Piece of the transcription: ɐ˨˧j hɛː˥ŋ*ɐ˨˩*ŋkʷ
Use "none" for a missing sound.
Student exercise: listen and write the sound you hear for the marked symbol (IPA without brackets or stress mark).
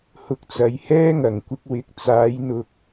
ɐ˨˩